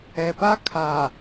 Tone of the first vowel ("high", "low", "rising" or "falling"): low